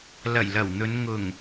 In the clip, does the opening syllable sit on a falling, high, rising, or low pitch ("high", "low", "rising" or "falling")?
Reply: low